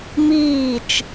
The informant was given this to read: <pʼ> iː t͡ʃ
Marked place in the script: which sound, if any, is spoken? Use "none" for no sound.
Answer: m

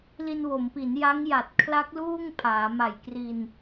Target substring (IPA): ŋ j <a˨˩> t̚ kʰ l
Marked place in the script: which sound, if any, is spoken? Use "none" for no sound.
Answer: a˨˩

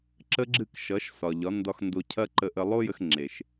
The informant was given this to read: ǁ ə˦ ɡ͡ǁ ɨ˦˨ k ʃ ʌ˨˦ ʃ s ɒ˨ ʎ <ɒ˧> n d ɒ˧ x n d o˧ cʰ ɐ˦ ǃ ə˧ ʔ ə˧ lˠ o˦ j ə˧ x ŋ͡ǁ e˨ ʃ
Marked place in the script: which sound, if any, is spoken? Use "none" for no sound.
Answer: ɒ˨˦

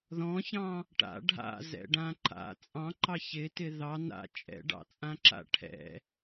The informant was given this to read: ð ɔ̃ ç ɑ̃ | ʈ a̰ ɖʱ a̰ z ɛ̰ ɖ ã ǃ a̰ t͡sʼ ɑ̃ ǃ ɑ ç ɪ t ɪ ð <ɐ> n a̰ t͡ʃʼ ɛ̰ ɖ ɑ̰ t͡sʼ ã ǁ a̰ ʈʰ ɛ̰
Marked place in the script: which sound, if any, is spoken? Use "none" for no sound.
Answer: ɑ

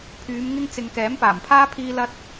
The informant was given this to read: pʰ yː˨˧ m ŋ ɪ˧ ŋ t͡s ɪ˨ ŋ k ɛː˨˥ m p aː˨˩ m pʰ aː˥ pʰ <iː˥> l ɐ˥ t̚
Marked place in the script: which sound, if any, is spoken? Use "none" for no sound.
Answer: iː˥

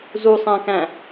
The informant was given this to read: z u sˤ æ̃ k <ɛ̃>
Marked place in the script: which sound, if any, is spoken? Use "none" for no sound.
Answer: æ̃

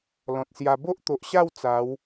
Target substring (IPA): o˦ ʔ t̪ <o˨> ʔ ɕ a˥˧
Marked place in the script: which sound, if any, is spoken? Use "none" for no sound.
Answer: o˨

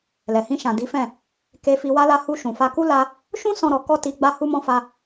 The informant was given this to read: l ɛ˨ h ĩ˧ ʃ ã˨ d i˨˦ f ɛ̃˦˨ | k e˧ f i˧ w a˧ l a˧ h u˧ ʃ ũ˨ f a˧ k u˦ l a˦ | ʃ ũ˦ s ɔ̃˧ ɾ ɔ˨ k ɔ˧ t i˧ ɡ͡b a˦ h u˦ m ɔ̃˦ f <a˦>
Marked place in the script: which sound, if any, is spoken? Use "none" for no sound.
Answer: a˦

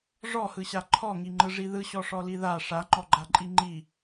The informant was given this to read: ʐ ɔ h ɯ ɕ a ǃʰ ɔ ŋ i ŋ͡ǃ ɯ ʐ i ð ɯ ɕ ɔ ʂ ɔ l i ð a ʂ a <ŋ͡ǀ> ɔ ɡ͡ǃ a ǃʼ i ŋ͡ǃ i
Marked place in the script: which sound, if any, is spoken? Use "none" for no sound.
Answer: ŋ͡ǃ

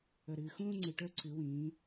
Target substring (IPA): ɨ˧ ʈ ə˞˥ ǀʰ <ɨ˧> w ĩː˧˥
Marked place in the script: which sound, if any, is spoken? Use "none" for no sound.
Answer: ɨ˧˥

